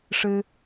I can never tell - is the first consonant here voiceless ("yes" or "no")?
yes